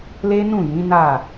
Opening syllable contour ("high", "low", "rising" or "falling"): high